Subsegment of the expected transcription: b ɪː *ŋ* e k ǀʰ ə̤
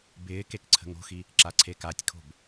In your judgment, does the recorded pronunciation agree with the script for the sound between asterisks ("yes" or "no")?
no